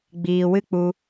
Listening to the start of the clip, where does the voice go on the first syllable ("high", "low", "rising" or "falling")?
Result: low